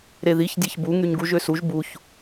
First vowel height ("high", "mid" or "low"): mid